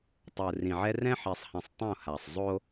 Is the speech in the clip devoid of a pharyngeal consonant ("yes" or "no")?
no